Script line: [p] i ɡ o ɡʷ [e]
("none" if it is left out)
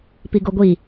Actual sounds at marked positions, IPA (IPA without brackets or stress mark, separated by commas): p, i